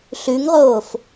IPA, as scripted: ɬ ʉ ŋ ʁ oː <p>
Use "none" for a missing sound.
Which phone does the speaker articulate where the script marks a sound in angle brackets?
f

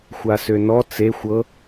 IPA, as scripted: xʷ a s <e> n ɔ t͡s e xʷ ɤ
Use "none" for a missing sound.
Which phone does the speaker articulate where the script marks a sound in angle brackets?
ø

